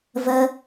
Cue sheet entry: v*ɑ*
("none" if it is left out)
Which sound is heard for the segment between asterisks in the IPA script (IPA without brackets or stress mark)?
ə